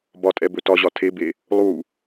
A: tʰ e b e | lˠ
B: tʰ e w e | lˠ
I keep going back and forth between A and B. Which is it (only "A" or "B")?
A